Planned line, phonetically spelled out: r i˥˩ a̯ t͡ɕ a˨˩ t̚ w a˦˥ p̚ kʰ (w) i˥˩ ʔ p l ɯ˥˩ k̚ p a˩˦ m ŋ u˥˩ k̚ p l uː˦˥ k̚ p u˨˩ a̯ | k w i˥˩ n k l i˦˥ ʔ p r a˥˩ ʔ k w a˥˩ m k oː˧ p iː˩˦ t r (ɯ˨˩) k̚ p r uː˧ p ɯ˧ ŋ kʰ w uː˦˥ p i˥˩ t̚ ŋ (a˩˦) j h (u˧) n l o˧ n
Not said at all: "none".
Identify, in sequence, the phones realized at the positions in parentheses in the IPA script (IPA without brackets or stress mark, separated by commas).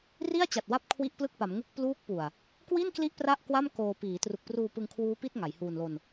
w, u˨˩, a˩˦, uː˧